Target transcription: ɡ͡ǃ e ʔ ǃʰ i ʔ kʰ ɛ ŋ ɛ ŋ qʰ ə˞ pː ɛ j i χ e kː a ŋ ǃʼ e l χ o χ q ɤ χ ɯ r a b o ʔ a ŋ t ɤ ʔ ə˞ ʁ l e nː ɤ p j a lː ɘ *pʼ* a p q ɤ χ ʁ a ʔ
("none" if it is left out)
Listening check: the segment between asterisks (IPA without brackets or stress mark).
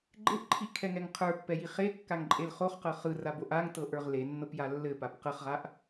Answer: p